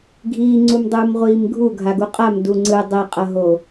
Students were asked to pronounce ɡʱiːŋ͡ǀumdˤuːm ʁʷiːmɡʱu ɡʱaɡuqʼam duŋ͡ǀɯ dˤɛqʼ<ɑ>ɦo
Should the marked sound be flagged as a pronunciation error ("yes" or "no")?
yes